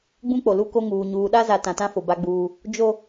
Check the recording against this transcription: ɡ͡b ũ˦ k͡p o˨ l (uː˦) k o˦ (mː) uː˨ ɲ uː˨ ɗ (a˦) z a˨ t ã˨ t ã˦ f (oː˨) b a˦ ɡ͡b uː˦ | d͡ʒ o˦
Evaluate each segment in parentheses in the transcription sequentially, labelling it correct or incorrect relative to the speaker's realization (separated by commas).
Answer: incorrect, incorrect, correct, incorrect